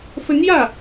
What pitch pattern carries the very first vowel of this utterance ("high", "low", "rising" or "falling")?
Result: rising